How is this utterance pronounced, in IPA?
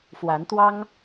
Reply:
f w a˨˦ n t̪ w ɑ˦ ŋ

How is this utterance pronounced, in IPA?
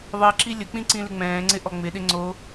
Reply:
ðˤ i ǁ i lʲ ə k͡p ĩ ǀ ĩ l ɪ ŋ͡m ɛ̃ː ŋ͡ǀ ɪ ʔ ɔ ŋ͡m ɪ ɗ ɪ ŋ͡ǀ o

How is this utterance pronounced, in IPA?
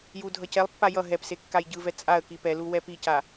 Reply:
j u dʱ ʌ c ɛ lˠ pː a j ʌ ɦ ɛ p s e kː a j ɟ ɯ v ɛ t͡sʼ a ə̯ k i p ɛ l u w ɛ p i c a

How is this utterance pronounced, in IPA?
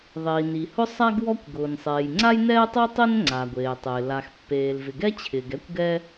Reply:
ðˤ iː˩ n i˩ h ʊ˥ sˤ a˥ ɡ w ɔ˥ kʷ ɡ ʊː˩ n sˤ eː˩ j ŋ͡ǀ a˥ j n ɛː˥ tˤ o˥ tˤ e˥ n ŋ͡ǀ a˩ ɡʷ eː˩ tˤ ɪː˩ l a˩ x pː eː˩ l v ɪ˩ ɡ ɛ˥ t͡ɕʰ ɪː˩ ɡ ɛ˥ kʷ ɡ ɛ˥

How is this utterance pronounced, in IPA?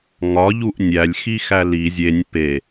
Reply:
ŋ ɒ ʎ u ʔ nʲ æ lʲ x i x æ l i zʲ e nʲ p e

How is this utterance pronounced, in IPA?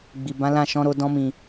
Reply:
ɡ͡b i˨ b ã˨˦ l ã˦˨ ʃ ɔ̃˨˦ ɾ o˧ d ɔ̃˧ m ĩ˨

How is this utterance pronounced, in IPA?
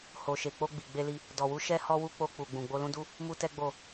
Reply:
h o˨ ʃ e˨ k͡p o˧ ɡ͡b i˨ ɡ͡b e˧ l i˧ | d ɔ˨ w u˨˦ ʃ ɛ˦ h ɔ˦ w u˦ k͡p o˧ k͡p u˨ ɡ͡b ũ˨ ɡ͡b o˧ l ũ˦ d u˦ | m u˦ t ɛ˦ ɡ͡b o˦˨

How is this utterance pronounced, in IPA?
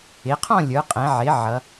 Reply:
ɪ˩˧ qʰ ɔ̃˥˧ lʲ ə˞˩˧ qʼ ɛ̃˩˧ ʕ ɪ˩˧ ʕ ʌ˩˧

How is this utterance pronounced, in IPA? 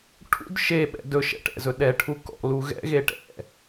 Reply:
ʈʰ ṵ d ʃ e ɓ ɛ̰ d ɵ ʃ ɛ̰ ʈ ɛ̰ z ɵ ɗ ɛ ʈʰ u k ɔ̰ l u ɣ ɛ̰ ɣ e ʈ ɛ̰

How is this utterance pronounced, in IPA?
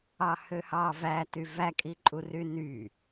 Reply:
ɑ h ø h ɑ v æ t y v æ kʼ i ǃʼ u r y n y

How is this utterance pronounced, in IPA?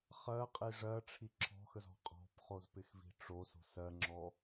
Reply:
χ ɜ qʼ i ʐ ɜ ʈ͡ʂʰ i ǁʰ ɔ̤ x ə z ɔ̤ qʼ ɔ̤ p χ o z p ɪ x v i̤ ʈ͡ʂ o s o̤ s ɜ ŋ͡ǁ ɔ

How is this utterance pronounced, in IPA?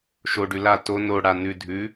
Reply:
ʃ o ɖ ʉ l a t o n o ɽ a n ʉ dʱ ʉ

